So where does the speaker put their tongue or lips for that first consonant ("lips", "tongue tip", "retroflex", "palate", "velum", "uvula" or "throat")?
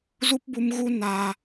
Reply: tongue tip